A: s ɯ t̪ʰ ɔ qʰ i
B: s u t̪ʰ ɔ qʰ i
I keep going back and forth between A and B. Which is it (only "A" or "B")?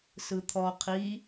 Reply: A